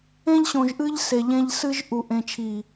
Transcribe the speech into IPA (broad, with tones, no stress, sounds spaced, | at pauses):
ẽ˦ ʎ ɕ õ˨ ʒ ʔ ɨ˦ ʎ s e˨ ʎ ẽ˦ ʎ s ɨ˦ ʒ ʔ u˨ ʔ ẽ˨ t͡ʃʰ i˨